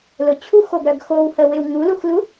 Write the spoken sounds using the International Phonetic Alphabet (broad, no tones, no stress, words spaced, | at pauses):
lʊt͡ɕʰuxoɡɾœɡ xowhəwɪw ŋuluxlu